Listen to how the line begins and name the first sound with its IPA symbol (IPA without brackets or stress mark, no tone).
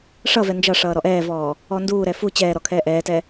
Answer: ʂ